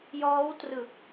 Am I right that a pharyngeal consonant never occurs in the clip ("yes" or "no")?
yes